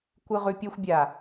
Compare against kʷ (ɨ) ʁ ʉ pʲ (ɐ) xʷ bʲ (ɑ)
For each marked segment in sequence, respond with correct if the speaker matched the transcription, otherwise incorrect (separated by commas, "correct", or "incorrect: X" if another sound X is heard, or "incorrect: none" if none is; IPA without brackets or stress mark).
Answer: correct, correct, incorrect: a